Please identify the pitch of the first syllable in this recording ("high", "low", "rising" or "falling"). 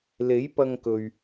rising